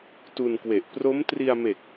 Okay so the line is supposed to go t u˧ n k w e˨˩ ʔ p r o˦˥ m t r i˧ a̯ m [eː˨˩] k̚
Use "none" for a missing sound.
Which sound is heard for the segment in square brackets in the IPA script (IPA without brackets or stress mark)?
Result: e˨˩